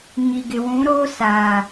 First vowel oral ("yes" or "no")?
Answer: yes